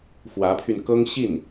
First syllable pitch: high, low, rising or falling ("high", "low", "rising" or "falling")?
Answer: rising